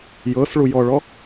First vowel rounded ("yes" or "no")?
no